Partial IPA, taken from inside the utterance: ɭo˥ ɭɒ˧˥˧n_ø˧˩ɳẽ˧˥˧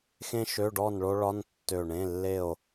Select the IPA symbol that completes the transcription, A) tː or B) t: A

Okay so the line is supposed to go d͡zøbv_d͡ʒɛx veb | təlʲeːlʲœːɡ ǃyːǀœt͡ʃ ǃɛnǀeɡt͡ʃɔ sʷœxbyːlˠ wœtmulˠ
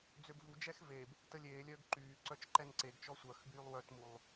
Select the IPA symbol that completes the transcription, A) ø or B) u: B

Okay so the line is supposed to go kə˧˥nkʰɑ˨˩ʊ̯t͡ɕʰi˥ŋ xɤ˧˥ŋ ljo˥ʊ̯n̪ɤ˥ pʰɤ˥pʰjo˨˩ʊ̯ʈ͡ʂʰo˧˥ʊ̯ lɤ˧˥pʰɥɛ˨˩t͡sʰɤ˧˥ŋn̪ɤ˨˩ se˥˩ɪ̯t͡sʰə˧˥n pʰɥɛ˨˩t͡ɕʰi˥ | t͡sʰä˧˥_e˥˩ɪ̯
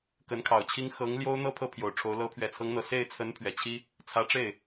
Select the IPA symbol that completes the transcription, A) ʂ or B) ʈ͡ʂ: B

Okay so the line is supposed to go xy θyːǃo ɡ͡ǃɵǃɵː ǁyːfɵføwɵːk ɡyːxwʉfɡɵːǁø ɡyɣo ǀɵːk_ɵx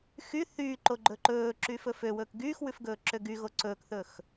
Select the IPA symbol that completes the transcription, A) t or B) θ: B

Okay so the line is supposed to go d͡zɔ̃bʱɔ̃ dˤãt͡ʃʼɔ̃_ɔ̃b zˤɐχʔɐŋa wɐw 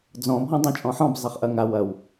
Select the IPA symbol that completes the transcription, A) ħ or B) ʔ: A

